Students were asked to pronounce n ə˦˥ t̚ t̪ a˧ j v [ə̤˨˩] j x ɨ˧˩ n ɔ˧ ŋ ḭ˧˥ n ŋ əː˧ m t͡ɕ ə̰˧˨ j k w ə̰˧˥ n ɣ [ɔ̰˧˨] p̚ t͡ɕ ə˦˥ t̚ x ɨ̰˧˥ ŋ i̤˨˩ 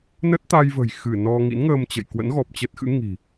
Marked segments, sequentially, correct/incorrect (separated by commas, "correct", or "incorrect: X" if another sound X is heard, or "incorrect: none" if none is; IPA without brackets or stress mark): correct, incorrect: ɔ˨˩